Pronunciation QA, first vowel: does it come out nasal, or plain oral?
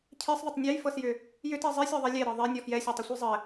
oral